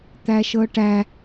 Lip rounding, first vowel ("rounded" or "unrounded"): unrounded